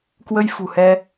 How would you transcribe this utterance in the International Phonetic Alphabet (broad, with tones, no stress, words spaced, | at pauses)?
kwə˧jfṳ˨˩hɛ˧